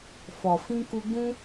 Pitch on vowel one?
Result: low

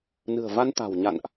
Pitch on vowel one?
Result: low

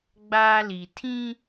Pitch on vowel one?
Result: high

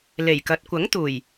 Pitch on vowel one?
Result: low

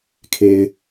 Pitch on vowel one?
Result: low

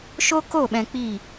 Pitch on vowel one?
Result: high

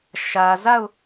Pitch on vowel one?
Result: low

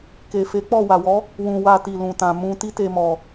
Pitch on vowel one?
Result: low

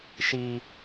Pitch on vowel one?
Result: high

